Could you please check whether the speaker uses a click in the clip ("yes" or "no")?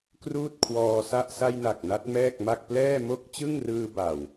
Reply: no